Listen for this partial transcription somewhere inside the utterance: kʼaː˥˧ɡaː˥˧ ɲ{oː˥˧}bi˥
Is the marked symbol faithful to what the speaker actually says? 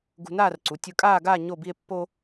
no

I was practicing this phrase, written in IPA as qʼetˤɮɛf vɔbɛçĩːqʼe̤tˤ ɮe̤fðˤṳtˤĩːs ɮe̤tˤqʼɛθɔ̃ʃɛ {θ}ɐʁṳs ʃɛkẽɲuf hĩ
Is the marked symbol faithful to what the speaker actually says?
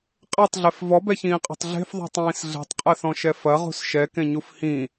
no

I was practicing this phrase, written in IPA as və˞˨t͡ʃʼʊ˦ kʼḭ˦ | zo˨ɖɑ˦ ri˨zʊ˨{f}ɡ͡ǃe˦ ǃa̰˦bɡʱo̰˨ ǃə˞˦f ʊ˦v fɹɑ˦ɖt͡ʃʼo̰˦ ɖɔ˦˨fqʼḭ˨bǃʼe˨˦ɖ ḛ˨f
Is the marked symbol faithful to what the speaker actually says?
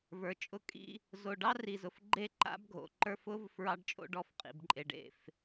yes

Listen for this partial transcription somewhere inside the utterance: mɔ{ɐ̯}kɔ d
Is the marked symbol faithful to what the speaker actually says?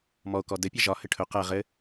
no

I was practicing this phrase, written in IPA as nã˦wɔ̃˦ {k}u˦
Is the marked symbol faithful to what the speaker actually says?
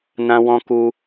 yes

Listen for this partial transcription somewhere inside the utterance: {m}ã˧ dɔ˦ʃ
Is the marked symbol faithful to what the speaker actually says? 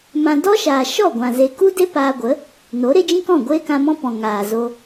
yes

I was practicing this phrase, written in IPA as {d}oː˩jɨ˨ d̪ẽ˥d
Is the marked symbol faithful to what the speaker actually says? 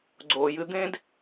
no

